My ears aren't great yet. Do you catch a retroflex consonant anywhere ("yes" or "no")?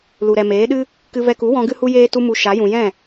no